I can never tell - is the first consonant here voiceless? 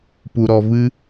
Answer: yes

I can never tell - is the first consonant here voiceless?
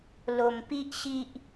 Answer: no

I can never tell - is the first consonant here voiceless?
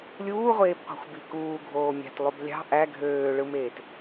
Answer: no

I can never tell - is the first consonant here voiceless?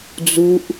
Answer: no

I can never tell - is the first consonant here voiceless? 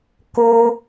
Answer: yes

